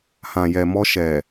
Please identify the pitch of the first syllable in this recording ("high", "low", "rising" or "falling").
low